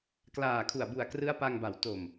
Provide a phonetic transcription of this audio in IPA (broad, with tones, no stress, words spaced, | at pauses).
klaː˨˩kʰu˨˩a̯bu˨˩a̯ krɯ˦˥a̯pa˧ŋba˨˩w to˨˩m